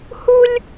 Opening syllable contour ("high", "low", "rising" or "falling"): high